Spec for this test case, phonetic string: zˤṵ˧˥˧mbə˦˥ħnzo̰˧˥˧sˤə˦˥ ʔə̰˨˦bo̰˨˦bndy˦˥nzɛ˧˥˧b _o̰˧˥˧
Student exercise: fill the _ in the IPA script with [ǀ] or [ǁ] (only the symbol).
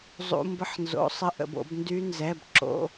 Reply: ǁ